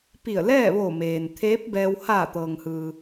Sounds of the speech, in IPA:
pi˧˩ə̯lɛː˥˨ʋoː˧˩meː˩n t̪ʰeː˧˥p̚ bɛː˧w haː˧˩t̪ɤː˩ŋ hɯː˩

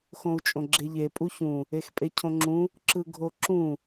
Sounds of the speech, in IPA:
xõu̯t͡ʃʼõɡ͡ǁeʎe pʼuçũ | expʼecʰõŋ͡ǁũ | ǁɯɡʱoǁũ

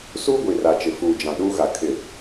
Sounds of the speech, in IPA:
suː˦ɡʷi˨ra˨t͡ʃɪ˨ fuː˨d͡ʒã˨ɗuː˦ɣa˨ kʰɪ˦˨

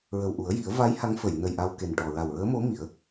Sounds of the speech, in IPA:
ɹə˨˩wʔu˨˩˦ə̯ji˨˩˦ə̯ va˧˥j ha˧˥ŋfə˨˩˨j nə˨˩j ʔa˧wke˨˩nʈɔ˨˩ ɹa˨˩wɹəː˧˥mo˧˥ mi˨˩˦ə̯

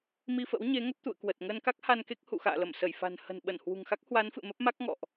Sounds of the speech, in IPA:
mi˧fə̰˧˥wɲe˨˦ ŋə˦˥p̚t̪ṵ˧˨ə̯ kwə˨˩t̚ŋəː˧nka˦˥k̚ ha˧nke˦˥k̚ hṵ˧˨xa̰ː˧˨lə˧˩m sə˧˩jfa̤˨˩n hə̤˨˩nɓə˧˩n hwṳ˨˩ŋxa˦˥k̚hwa˨˦nfɨ̰˧˨ mə˦˥p̚ma˦˥k̚ ŋɔ̰˧˨ʔ

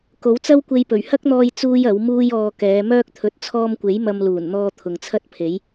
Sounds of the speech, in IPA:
ko˨˥wt͡sɐ˥wkʷe˧jpɵ˨˩ɥ hɐ˥k̚n̪ɔː˧j t͡suː˥jɐ˨˥wmuː˥jɔː˧ kɛː˨˧mœː˥k̚ t̪ʰɵ˨˥t̚t͡sʰɔː˧mkʷe˨˥j mɐ˧mluː˨˩nn̪ɔː˧ t̪ʰʊ˨ŋt͡sʰɐ˥t̚pʰe˨˥j

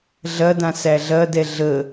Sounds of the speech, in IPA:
ɮɐdã sæɮɐdɛ ɮə

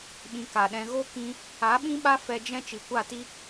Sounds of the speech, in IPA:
ɓĩ˧ka˨ɗɛ̃˧ ɣo˦kĩ˧ | a˨˦ɓĩ˦ɓa˦ fɛ˧ d͡ʒɛ̃˦ t͡ʃi˨kʷa˦˨ti˦

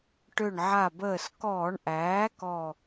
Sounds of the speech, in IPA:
ʈø˧˩ɳʕa˧˩bəː˧˩s kɔː˧˩˧ɳʔæː˩˥ kɔ˧˩

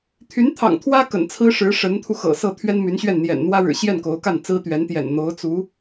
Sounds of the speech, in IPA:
t̪ʰy˧˥nt̪ʰɑ̰˨˩ŋt̪ʰwä˥ kə̰˨˩nt͡sʰɹ̩˥ʂɻ̩˧˥ ʂə˧˥nt̪ʰu˧ xɤ̰˨˩sɤ˥˩ t̪ʰɥɛ˥nmy˧˥nɕɥɛ˥˩n n̪jɛ̰˨˩nn̪wä˥ɻɻ̩˨˩ ɕjɛ˥˩nko˧˥ʊ̯ka˥˩n t͡sɹ̩˥t̪ɥɛ˧˥nt̪jɛ̰˨˩n n̪o˧˥ʊ̯ t͡su˧˥

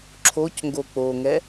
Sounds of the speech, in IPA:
ǁʰocŋɡo k͡poŋɛ

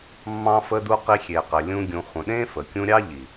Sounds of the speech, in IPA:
mːɑ̃˧fə˧du˧ qi˧xʲe˨qɘ˨lʲũ˧ ɡʲũ˨χʷə̃˨ɗẽ˦ fə˨ kʲũ˧ɾʲɑ˦ ʎi˨

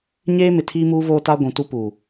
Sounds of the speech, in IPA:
ɲeː˦mɪ˨ tʰiː˦muː˦voː˦ta˦ ɡʷũ˨tu˦puː˨

